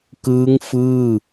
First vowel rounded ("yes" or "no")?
no